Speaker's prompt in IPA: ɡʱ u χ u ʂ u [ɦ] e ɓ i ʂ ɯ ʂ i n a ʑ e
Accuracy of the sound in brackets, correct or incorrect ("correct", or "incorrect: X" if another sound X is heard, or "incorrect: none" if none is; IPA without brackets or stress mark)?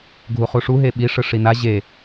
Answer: correct